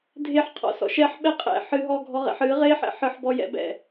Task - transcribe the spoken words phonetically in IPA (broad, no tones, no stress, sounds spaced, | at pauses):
dʱ e ħ qʰ ɔ̰ s ɔ̰ ʃ ɛ ħ ɓ ɛ qʼ ɛ̰ ħ ɨ ɦ ɔ ɡʱ ɔ ʁ ɛ̰ ħ ɨ ʁ e ħ ɛ̰ ħ ɨ ħ b ɔ j ɛ̰ b ɛ̰